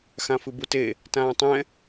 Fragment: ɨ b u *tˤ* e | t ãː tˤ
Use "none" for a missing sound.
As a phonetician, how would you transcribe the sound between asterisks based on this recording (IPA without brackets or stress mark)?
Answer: t